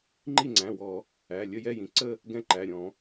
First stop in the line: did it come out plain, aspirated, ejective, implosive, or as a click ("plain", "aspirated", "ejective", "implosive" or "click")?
click